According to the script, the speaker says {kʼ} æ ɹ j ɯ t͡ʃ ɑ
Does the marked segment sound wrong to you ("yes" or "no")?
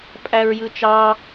yes